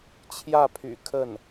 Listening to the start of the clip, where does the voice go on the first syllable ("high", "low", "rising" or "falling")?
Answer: falling